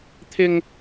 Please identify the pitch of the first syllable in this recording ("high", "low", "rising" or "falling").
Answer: high